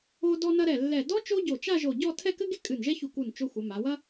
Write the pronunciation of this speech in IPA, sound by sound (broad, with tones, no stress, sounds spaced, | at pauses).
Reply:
o˧ d ɔ˧ n ɐ˧ ɾ ɛ˧˩ lː ɛ˧˩ d ɔ˥ t͡ʃ o˥ ɟ o˧˩ t͡ʃ a˥˧ ʒ o˧˩ ɟ ɔ˥˧ tʰ ɛ˥˧ k ɘ˥ ɡ e˥ kʼ ɨ˧˩ n ʒ ɛ˥ ç u˧˩ k u˧˩ n t͡ʃ o˧ xʷ ɘ˩˧ m a˩˧ w ɐ˥